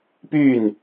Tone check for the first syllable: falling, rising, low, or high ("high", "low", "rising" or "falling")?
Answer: falling